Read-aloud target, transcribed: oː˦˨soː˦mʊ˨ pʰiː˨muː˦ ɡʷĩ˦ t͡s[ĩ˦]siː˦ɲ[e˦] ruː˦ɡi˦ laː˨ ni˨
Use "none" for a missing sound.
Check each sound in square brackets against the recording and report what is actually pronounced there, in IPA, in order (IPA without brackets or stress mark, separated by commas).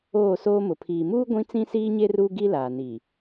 ĩ˦, e˦